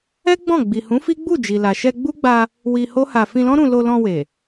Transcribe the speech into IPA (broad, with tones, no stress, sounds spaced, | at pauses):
ɛ˦ ɡ͡b ɔ̃˦˨ ɡ͡b i˨ h ũ˨˦ f i˦ ɡ͡b u˦˨ d͡ʒ i˨ l a˨ ʃ ɛ˧ ɡ͡b u˦ ɡ͡b a˧ | w i˧ h o˦ h a˧ f ĩ˧ l ɔ̃˦ ɾ ũ˧ l o˧ l ɔ̃˧ w e˨